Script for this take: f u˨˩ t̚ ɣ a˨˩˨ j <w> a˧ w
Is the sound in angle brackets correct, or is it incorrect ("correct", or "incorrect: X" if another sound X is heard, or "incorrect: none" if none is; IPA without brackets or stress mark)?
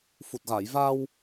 incorrect: v